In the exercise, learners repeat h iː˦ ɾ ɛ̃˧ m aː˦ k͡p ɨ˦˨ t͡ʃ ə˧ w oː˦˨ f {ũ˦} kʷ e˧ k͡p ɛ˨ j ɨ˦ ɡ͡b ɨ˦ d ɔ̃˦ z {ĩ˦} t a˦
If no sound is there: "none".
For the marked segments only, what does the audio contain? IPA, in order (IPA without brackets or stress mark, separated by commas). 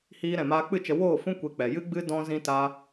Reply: ũ˦, ĩ˦